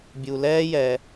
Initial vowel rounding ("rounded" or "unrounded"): rounded